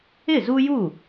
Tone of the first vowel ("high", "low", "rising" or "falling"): falling